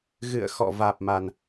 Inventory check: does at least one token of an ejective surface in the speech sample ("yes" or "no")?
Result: no